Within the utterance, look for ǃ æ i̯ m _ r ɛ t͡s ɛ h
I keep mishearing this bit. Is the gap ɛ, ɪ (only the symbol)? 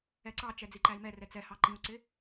ɛ